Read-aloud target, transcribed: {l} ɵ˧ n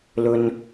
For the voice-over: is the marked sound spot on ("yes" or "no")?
yes